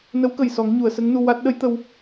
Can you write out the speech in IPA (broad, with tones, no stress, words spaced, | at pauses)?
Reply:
nə˧˥wkə˨˩j sɔ˨˩˦ŋɲu˨˩˨ə̯sə˧˥ŋnu˧ wa˦˥t̚ ɗə˧˥jt̪ə˧w